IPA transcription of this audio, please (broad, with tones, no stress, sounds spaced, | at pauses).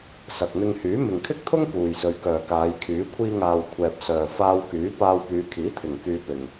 s ɐ˨ k̚ n̪ ɪ˧ ŋ h yː˨˥ m ɪ˨ ŋ kʰ ɪ˥ k̚ t̪ʰ ʊ˥ ŋ p uː˨ j s ɵ˨˧ ɥ k œː˨ k aː˨˧ j kʰ yː˨˥ kʷʰ iː˧ ŋ aː˨ w kʷʰ ɛː˨ p̚ s œː˨ f aː˧ w k yː˨˥ p aː˧ w p yː˨˧ kʰ iː˨˥ t̪ʰ ɪ˨˩ ŋ k yː˧ p ɪ˨ ŋ